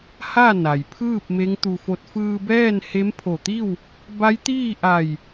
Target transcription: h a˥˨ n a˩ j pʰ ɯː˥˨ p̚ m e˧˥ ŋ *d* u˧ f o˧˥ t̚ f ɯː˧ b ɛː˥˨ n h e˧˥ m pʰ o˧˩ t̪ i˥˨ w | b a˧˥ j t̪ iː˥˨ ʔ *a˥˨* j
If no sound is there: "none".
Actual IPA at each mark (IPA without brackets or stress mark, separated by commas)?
t̪, a˧˩